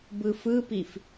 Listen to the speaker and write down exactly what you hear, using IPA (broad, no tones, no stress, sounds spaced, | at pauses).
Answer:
b ɯ f ɯ p i f